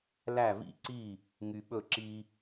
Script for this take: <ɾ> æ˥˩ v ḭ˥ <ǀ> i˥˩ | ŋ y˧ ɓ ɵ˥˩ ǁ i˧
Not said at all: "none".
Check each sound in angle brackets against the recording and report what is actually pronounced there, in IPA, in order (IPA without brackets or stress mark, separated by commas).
l, ǀ